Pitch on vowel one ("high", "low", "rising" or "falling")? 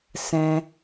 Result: high